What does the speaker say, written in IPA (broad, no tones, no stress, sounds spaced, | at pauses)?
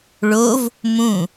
ɭ o v | m ũ